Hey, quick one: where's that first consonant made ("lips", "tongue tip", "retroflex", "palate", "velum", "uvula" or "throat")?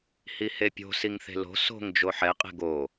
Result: throat